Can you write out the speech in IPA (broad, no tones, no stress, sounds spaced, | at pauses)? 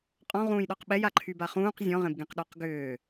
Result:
qʼ ɔ̃ ʁ ũː j ɗ ɔ q ɓ ɛ j a ǃʰ y b a χ ũː q zʲ ɔ̃ ʁ ẽ b ɡ ẽ q ɗ ɔ q ɡ ʏː